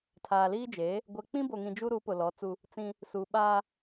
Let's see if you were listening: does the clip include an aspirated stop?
yes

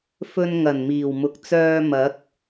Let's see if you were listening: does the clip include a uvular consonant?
no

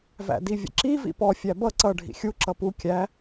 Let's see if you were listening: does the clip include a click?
yes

